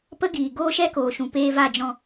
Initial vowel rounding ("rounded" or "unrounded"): unrounded